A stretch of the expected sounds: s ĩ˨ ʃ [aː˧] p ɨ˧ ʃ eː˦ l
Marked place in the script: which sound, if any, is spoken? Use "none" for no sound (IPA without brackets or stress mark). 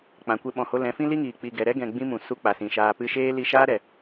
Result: aː˧